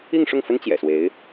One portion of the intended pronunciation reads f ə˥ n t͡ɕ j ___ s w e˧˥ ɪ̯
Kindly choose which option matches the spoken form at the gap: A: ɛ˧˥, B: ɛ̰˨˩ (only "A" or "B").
B